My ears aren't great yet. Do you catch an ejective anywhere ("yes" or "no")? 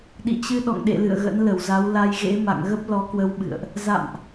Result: no